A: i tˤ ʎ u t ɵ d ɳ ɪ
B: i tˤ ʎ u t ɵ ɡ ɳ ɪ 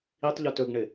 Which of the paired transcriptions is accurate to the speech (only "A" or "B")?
B